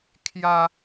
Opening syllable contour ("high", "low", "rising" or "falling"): high